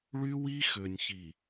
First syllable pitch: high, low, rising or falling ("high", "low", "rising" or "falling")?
high